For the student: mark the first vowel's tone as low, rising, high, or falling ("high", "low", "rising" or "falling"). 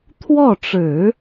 falling